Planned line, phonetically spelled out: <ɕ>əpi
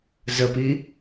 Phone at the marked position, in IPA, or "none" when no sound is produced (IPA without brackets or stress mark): z